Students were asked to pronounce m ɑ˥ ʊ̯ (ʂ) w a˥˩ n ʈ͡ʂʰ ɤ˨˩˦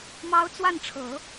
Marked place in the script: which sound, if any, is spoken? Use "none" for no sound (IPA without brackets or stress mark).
t͡s